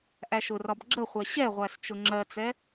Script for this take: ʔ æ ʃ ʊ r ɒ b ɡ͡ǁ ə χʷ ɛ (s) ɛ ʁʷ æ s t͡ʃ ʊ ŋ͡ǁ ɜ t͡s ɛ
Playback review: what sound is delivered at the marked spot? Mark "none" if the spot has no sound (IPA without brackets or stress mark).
ɕ